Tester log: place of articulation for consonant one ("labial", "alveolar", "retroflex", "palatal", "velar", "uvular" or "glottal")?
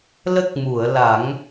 alveolar